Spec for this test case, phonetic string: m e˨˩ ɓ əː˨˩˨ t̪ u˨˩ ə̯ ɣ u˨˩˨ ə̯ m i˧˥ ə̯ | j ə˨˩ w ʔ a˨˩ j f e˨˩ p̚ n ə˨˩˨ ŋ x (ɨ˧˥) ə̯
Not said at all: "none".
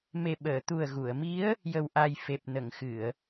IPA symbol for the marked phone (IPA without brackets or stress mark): ɨ˨˩˨